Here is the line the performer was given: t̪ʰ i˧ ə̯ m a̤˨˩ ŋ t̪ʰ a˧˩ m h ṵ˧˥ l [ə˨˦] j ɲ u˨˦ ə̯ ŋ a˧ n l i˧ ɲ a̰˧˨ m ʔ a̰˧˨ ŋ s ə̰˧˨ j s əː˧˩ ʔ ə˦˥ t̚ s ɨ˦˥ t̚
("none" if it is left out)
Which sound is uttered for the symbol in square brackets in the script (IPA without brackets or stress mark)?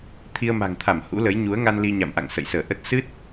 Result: ə˨˦